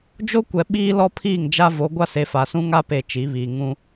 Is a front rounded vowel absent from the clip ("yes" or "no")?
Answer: yes